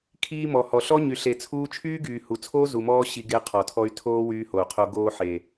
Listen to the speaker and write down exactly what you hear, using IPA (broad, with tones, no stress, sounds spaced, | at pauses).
kʰ iː˧ m ɔ˨ h ɔ˨ ɬ ɔ˦ ɲ y˨ ɬ e˨ t͡sʰ uː˧ t͡ʃʰ yː˦ ɡ yː˨ h u˨ t͡sʰ oː˦ z u˨ m ɔː˧ ɕ i˧ ɡ e˧ qʰ ɔ˨ tʰ ɔ˧ y̯ tʰ oː˦ w yː˧ h o˨ u̯ qʰ o˧ ɡ oː˧ ħ e˨